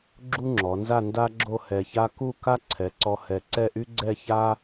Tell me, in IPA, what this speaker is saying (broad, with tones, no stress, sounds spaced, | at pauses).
ɡ͡ǁ u˥ ŋ͡ǁ ɔ˩˧ n z a˥˧ n d a˥ ɡ͡ǁ o˥˧ h ɛ˧ ç a˥ k u˥˧ k a˥ ǀʰ ɛ˩˧ ǀ ɔ˧ h ɛ˧˩ ǀ ɛ˥˧ ʔ y˥ ɡ͡ǀ ɛ˥˧ ç a˥